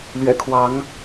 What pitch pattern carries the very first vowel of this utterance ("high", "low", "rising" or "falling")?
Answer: low